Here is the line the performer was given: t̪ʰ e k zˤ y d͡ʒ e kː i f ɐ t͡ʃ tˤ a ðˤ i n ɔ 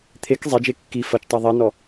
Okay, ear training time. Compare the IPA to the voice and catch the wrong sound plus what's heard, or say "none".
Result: y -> e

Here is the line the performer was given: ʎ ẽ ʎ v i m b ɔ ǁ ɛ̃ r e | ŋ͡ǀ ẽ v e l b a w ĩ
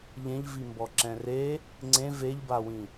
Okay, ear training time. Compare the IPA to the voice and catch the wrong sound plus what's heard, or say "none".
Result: l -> ʎ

